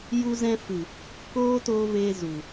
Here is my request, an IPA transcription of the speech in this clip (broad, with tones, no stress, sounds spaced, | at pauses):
j u˧ z ɛ̃˧ f ɨ˨ | k oː˦ t oː˧ v eː˧ z u˨